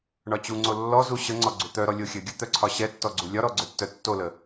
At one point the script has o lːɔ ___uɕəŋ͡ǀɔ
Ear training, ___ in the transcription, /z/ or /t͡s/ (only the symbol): z